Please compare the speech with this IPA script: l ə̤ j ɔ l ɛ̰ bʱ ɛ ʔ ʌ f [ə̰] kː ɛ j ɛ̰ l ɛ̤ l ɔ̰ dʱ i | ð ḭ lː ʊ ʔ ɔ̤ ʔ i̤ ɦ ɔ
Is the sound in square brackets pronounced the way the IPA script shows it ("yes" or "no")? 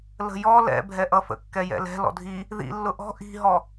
yes